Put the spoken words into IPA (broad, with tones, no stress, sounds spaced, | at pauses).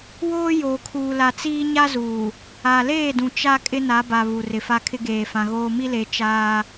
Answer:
w oː˦ j oː˨ kʰ uː˨ l a˨ t͡s iː˦ ɲ a˦ z uː˨ | a˨ l eː˦˨ d ũ˨ t͡ʃ a˦ kʼ ɪ˦ n a˨˦ b a˨ β u˨ r ɪ˨ f a˦ kʰ ɪ˦ ɡ eː˨ f ã˨ ɣ oː˦ m i˦ l e˨˦ t͡ʃ aː˦